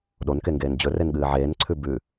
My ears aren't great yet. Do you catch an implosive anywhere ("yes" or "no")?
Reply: yes